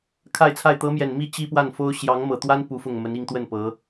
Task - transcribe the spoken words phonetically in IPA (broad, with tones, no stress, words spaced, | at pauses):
kʰa˥˧ɪ̯t͡sʰa˥˩ɪ̯ t̪ɤ˧˥mjɛ˨˩nmi˥˩ t͡ɕi˥pwa˥˩nfo˥ʊ̯ ɕjɑ˧˥ŋmɤ˨˩t̪wa˥n pu˧˥fʊ˥˩ŋmə˧˥ni˥˧ŋ t̪wə˥˩n pɤ˧˥